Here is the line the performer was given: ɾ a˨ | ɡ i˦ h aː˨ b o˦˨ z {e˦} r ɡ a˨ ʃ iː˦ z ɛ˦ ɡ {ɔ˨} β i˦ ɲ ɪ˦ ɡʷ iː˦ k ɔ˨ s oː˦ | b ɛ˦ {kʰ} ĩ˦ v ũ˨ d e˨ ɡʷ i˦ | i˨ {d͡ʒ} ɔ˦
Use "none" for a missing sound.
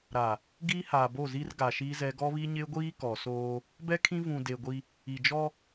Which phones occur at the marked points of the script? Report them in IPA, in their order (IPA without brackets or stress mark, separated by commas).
i˦, ɔ˦, kʰ, d͡ʒ